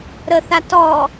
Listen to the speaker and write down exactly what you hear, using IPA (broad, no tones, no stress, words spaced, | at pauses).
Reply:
ɾəθa tɔ